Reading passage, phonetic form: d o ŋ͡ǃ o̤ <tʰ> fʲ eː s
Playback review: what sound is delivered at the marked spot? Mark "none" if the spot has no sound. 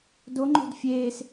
d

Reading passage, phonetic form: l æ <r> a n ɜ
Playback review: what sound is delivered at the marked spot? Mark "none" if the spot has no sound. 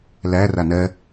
r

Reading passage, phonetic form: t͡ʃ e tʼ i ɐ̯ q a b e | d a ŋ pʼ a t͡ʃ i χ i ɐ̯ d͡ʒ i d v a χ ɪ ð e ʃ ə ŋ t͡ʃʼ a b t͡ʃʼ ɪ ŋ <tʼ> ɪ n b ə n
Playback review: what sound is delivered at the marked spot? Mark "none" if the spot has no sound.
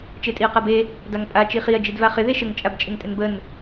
tʼ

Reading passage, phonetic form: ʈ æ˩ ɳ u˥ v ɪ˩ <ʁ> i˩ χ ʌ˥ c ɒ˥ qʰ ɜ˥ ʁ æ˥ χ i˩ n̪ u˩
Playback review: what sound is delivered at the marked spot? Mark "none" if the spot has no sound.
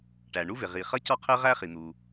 ʁ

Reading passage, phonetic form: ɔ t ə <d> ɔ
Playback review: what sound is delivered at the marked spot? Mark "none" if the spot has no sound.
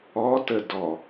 d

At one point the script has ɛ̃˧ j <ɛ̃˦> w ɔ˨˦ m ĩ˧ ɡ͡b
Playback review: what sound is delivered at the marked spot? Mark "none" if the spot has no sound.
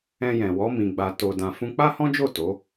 ɛ̃˨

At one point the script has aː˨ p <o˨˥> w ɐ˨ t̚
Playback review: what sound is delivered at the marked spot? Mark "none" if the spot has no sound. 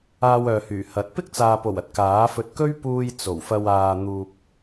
o˨˩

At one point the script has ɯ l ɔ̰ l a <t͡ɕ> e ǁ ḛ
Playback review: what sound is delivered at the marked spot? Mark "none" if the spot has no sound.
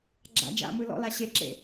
ɕ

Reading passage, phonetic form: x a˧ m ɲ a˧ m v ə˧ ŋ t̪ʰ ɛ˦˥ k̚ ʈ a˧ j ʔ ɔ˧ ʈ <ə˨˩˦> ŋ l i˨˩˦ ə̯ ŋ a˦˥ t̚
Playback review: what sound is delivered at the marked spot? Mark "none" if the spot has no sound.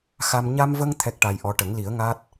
ə˨˩˦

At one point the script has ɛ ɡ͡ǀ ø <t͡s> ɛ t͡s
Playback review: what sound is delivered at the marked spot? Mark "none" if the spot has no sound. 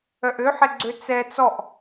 t͡s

